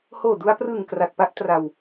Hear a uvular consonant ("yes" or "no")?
no